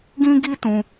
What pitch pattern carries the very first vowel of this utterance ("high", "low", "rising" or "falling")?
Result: high